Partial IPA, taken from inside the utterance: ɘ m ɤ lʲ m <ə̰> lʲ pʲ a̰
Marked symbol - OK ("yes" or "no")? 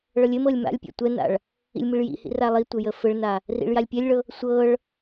no